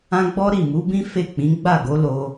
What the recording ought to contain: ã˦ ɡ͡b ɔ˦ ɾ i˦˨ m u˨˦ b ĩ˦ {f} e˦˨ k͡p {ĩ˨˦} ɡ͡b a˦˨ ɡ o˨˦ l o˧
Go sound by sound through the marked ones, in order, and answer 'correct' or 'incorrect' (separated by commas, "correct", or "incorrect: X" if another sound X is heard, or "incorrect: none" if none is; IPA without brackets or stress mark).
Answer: correct, correct